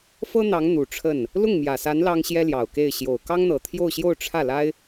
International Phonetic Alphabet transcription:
fɤ˥n̪ɑ˧˥ŋ n̪u˨˩ʈ͡ʂʰə˥˩n | lʊ˥˩ŋmjä˨˩sa˧˥n lɑ˥ŋɕjɛ˥ljɑ˨˩ʊ̯ke˥˩ɪ̯ ɕjo˨˩ʊ̯ kɑ˥ŋn̪ɤ˨˩ t̪ʰjo˥˧ʊ̯ɕjo˥˧ʊ̯ʈ͡ʂʰä˥˩la˥ɪ̯

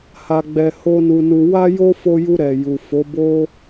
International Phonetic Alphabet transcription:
ha˧ɡ͡bɛ˧ ho˦nu˧nu˧ wa˦jo˦fo˧ju˧ ɾɛ˨ju˨fo˨˦ bo˦

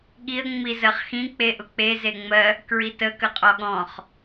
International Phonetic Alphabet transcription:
ɠiə̯ ŋ͡mizɜχxĩ k͡peʔʊk͡pe zeŋ͡mɜ | kɹitə kəqʼɔɠɔ̃χ

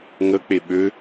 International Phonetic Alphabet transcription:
ŋək͡pe ɓø

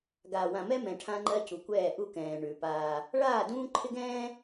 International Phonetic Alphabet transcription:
ɡaː˨wã˨mɛ˦mɛ̃˨ ʈʰã˦ŋ͡ǃɜ˦ cu˨kʷɛː˦˨ʔu˦kɛ̃ː˨ ɳʉ˨paː˦ | ɭaː˦˨dũː˦ǃʰɪ˦ ɡɛ̃ː˦

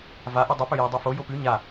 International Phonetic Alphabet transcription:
vaʔu dˤɨpɵ jadˤifo jopʉ ɲa

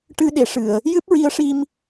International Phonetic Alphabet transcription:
ʈɨ˧ɗe˨˩˨ ʂɨ˨˩˨ə̯ | jɨ˦˥p̚ɹi˧ə̯ʂi˧m

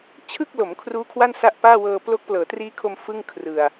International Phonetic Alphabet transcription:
t͡ɕʰɯ˥˩k̚lo˩˦m kʰruː˦˥kʰwa˥˩n sa˦˥ʔpaː˥˩wɤː˧ plo˦˥k̚plɤː˩˦triː˦˥kʰo˧m fɯ˥˩ŋkʰrɯ˨˩a̯

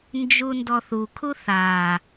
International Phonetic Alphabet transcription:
nd͡ʒundɔθukʰu θa

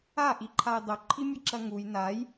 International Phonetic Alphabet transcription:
aʔiǃʰaj dˤʊǃʰimʲɐǁɐ ŋuj naj

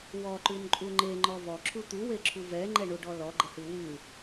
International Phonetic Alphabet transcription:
wɔǃʉnǃʼu ŋ͡ǃeŋ͡ǃɔ vɔǁʰu t̪uweǁʰu vɛŋ͡ǃɛɳuɖɔ lɔɡ͡ǃəhʉ wʉ

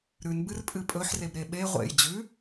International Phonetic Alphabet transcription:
ɾʉn bɨrpʼɨpʼɵħ rebɾeɓe ʁʷḛj d͡ʑʉ

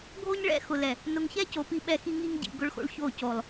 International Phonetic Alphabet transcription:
ɡʱo˦ɲɭɛ̰˦ xʊ˨lɛ˨ | nʊ˨ŋçɛ˦co˨ pi˦ ɓɛ˦xi˦ ŋi˦ŋɟḭ˨ ɡʊ˦ɭxo̰˦ɭço˦˨co˨lˠ

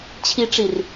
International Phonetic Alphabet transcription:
t͡ɕʰiʈ͡ʂir

